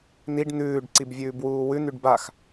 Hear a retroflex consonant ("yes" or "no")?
yes